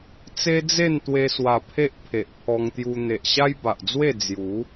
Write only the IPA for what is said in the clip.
t͡s e˦ d͡z e˥˧ n t̪ w e˧ s w a˨˩ pʰ e˦ ʔ pʰ e˨ ʔ pʰ ɔ˧ ŋ t̪ j u˧ n̪ e˨ ʔ ɕ a˦ j b a˨ ʔ d͡z w e˥˧ d͡z j u˨˦

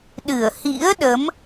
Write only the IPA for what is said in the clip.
ɗ ɨ˧˩ ə̯ h ḭ˧˥ ə̯ ɗ ə˨˦ m

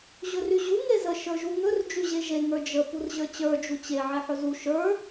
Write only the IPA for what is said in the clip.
ʑ ɵ r y ʑ u ŋ e z ə ʃ ə˞ ʒ u ŋ ɵ r d͡ʒ y ʑ e ʒ e ŋ ə˞ d͡ʒ ə p u r ʑ ə˞ t͡ɕ ə˞ d͡ʒ u t͡ɕ e ʕ e ħ ɵ z u ʃ ə˞

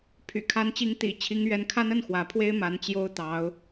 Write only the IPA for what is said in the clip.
pʰ y̰˨˩ kʰ a˧˥ n t͡ɕ i˧˥ ŋ t̪ ḭ˨˩ t͡ɕʰ i˧˥ ŋ ɥ ɛ˧˥ n kʰ a˥ n ə˥˩ n x w ä˧˥ pʰ w e˥ ɪ̯ m a˧˥ n t͡ɕ j o˥ ʊ̯ t̪ ɑ˧˥ ʊ̯

